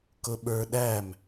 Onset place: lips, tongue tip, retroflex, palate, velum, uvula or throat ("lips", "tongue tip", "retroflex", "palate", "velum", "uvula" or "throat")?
velum